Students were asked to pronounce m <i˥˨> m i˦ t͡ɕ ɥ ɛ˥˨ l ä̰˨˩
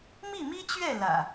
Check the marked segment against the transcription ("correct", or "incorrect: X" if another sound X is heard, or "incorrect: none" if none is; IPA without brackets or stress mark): correct